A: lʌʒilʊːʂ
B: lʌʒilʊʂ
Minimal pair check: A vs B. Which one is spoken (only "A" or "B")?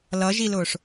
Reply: A